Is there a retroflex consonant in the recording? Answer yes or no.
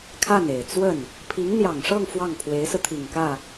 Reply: yes